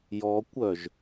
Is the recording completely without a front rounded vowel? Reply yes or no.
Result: no